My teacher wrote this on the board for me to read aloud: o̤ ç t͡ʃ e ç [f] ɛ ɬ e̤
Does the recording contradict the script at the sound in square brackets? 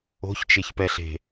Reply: yes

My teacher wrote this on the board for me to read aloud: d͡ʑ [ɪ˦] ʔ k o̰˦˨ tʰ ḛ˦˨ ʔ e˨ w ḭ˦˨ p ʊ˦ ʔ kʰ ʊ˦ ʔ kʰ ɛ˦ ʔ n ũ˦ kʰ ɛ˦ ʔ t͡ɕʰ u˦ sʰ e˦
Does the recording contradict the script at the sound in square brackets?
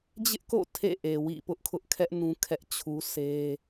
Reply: no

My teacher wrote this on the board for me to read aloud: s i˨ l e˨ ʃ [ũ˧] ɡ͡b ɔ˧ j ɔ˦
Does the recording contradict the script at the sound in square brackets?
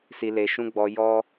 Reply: no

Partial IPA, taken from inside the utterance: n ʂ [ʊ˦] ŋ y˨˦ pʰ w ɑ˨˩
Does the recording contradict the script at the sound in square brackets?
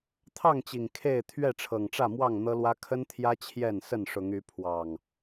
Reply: yes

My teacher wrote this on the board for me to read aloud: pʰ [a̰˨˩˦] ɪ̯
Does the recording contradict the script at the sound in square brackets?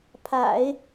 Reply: no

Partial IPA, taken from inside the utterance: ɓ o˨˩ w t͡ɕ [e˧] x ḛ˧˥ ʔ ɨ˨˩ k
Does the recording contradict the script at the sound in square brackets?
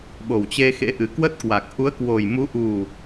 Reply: no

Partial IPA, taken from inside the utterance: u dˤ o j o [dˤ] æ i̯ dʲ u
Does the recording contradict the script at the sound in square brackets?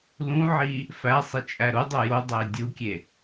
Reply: no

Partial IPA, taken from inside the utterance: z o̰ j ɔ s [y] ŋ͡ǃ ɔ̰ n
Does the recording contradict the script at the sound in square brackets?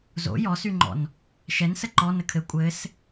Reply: no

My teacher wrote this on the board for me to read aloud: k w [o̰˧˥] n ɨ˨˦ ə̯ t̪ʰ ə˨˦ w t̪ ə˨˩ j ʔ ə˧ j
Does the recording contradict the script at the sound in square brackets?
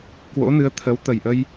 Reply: no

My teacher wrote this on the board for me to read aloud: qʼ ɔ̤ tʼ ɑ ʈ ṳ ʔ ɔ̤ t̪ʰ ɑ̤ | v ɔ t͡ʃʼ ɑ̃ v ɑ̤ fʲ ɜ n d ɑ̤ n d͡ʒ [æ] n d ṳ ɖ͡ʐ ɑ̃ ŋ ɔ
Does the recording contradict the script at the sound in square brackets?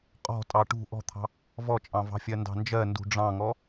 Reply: yes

